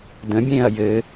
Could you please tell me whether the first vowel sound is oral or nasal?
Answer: nasal